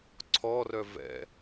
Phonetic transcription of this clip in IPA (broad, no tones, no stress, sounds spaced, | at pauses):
ǀʰ ɔ r œ v ɛ̰